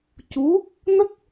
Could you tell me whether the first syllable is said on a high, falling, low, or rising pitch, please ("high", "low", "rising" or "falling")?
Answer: rising